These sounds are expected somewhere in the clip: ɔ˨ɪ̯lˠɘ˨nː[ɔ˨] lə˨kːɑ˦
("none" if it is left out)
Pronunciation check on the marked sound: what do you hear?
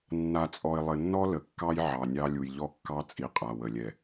ɔ˦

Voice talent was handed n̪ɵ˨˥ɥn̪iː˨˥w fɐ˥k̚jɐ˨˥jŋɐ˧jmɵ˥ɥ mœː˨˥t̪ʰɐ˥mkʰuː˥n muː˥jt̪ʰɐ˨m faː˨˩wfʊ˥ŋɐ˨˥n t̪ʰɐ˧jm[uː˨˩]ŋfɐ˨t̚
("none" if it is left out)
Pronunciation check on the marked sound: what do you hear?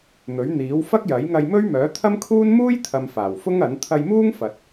uː˥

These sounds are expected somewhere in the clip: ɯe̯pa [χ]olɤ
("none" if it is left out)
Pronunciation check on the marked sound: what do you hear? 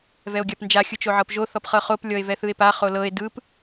χ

